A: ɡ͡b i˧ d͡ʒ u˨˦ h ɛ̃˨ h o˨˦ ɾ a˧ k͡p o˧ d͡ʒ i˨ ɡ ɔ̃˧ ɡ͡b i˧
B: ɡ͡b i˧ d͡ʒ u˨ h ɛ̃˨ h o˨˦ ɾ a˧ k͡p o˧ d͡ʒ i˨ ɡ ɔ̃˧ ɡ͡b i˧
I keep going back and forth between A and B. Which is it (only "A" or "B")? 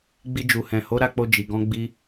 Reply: B